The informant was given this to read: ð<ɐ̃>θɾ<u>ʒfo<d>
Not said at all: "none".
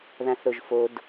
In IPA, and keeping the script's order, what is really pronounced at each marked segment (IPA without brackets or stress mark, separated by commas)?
ã, o, d